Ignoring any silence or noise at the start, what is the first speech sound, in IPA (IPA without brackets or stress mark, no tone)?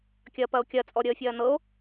kʲ